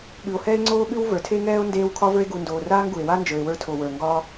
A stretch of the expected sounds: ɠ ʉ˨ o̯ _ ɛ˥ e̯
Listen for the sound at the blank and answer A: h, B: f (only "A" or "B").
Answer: A